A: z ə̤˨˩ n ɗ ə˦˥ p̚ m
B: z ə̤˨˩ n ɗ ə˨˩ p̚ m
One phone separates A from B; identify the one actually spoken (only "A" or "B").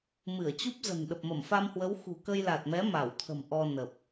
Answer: B